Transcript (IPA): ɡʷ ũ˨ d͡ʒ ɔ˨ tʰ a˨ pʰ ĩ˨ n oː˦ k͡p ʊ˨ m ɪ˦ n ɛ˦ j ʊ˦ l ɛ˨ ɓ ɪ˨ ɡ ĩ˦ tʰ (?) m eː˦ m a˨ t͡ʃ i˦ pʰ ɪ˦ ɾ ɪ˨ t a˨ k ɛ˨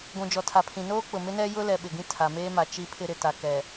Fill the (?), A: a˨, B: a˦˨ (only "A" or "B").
A